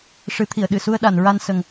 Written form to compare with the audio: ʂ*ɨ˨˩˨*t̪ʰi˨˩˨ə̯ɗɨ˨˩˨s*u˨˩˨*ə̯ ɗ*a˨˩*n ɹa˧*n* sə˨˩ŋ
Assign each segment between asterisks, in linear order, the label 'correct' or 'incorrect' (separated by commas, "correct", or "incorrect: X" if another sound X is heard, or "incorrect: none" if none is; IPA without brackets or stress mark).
incorrect: ɨ˨˩˦, incorrect: u˧, incorrect: a˨˩˨, correct